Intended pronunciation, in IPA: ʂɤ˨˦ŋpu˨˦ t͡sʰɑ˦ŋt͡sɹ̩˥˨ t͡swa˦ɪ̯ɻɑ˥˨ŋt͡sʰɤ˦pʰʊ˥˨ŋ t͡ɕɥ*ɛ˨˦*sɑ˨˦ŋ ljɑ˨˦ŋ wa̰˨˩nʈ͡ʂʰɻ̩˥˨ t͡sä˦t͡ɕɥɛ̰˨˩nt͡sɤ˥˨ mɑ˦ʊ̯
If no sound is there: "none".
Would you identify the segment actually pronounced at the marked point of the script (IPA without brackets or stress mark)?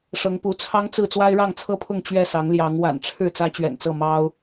ɛ˥˨